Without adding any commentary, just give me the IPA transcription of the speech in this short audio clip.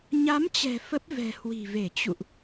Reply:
ɲ a˨˦ m t͡ɕ ɛ̤˨˩ f ə˦˥ p̚ v ɛ̤˨˩ h w i̤˨˩ v e˧˩ t͡ɕ ṵ˧˨ ʔ

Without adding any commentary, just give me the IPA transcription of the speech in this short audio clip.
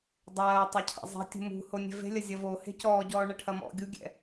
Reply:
dˤ ɐː tˤ ɐ cʰ a̰ zˤ e̤ tʲ ṳ m ṳ h o nʲ ɛ̤ v e̤ lʲ ɐ zʲ ɐ v o h e̤ c ɔː ɟ ɔː ɳ ɐ ʈʰ ɐ m ɔ̰ ɡʲ u ɡʲ ɛ̰

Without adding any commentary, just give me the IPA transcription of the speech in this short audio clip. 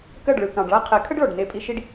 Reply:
k ɜ˦˨ ɖ ɭ ɯ˨ k ɑ̃˨ ɖ ɭ a˦ qʰ ɛ˨˦ kʰ ə˦ ɖ ɭ ɔ˨ ɖ n e˧ pʼ i˧ ʃ i˦ ɖ

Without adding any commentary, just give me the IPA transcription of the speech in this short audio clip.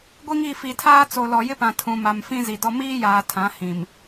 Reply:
ɡʷ i˦ ŋ i˦˨ f i˨ tʰ aː˦ t͡s o˨ l ɔ˨ j ɪ˦ p ã˨ tʰ ũ˨ m a˨ m f ĩ˦ z i˨ d ɔ˦ m iː˦ j aː˨ tʰ ã˨˦ h ĩ˨ m

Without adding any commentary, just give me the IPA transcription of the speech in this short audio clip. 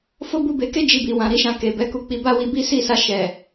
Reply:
f o˦ b u˧ b e˧ k e˦ d͡ʒ i˧ b i˨ w ã˨ ɾ i˧ ʃ ã˨ k e˨ b ɛ˨˦ k u˧ k͡p i˧ b a˦ w i˧ b i˦ s i˦˨ s a˧ ʃ ɛ˨

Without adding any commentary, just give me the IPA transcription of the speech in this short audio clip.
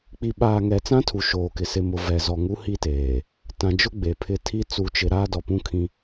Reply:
k͡p i˨ ɓ aː˨ ŋ ɛ˨ t͡s ã˦ tʰ u˨ ʃ oː˨ k ɪ˨ s ɪ˨ m ʊ˨ v ɛ˨ z ɔ˨ ŋ u˦ h i˦ t eː˨ | t ã˨ d͡ʒ ʊ˦ ɡ͡b e˨ pʰ ɪ˦ tʰ i˦ t͡s u˨ t͡ʃ ɪ˨ ɾ aː˦ d ɔ˨ p ũ˦ kʰ ĩ˦

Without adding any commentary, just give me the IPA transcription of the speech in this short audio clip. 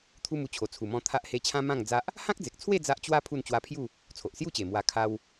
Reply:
t̪ʰ u˦ m u˧ t͡ɕʰ o˨˩ t͡sʰ u˨˩ m ɔ̃˧ t̪ʰ a˦ ʔ h e˦ t͡ɕʰ ã˦ m ã˥˧ ŋ d͡z a˦ ʔ | h ã˦ k̚ d͡z e˨ k̚ t͡sʰ w e˥˧ d͡z a˦ ʔ t͡ɕ w a˦ pʰ u˥˧ n t͡ɕ w a˦ pʰ j u˥˧ | t͡sʰ o˨ ʔ s j u˥˧ t͡ɕ e˨˩ m w a˧ kʰ a˧ w

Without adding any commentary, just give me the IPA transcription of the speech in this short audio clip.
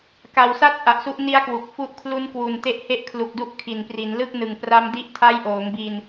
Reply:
k a˨˩ w s a˦˥ t̚ ʔ a˨˩ ʔ s u˦˥ ʔ n i˦˥ a̯ k w u˨˩ k̚ f u˦˥ ʔ kʰ l u˦˥ n k w u˨˩ n t e˦˥ ʔ h e˦˥ ʔ kʰ l u˨˩ k̚ d u˥˩ ʔ kʰ i˨˩ n p r i˩˦ n l ɯ˥˩ k̚ n ɯ˨˩ ŋ p r a˦˥ m d i˦˥ ʔ tʰ a˦˥ j ʔ oː˩˦ ŋ b i˧ n

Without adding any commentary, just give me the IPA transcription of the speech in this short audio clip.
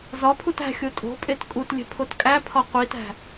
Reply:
z ɒ pʰ u t æ̤ xʲ o tʼ o̤ pʼ e t kʼ u t lʲ e̤ pʰ o t kʼ æ pʰ ɒ qʷ i t æ̤

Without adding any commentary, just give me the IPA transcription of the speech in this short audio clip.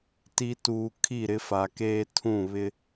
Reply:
t i˨ t uː˨ kʰ i˦˨ ɾ ɪ˦ f a˨ k eː˦ tʰ ũ˦˨ β ɪ˦

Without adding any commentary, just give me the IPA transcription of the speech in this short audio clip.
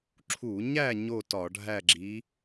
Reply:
ǁʰ u˧˩˧ ɲ æ˥˨ ɲ o˥˨ t ɒ˧˩˧ ɖʱ æ˥˨ ɡ͡ǁ i˨˥

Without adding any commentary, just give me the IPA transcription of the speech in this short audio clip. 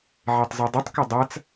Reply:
ʕ e tˤ z ɔ dˤ u tˤ k ɐ dˤ a t͡s

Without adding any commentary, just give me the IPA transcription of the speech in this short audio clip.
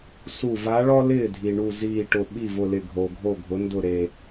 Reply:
s u˧˩ v a˧˥ ɭ ɔ˥ l ɪː˥˩ dʱ i˩ ɳ u˧˩ z iː˧˩ ʈ ʊ˧˩ ɓ i˥˩ v ʊ˧˩ l ɪ˧˩ ɡʱ o˩ ɡʱ o˧˩ ɡʱ ʊ˩˧ n d ʊ˧˩ ɾ e˩

